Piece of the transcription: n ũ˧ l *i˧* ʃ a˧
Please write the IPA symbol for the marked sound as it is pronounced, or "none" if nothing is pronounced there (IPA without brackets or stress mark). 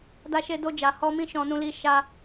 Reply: i˧